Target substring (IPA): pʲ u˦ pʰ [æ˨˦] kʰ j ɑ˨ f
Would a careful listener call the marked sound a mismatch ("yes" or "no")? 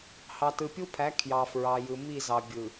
no